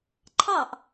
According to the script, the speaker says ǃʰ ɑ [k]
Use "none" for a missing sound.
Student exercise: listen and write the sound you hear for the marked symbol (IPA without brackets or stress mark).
ʔ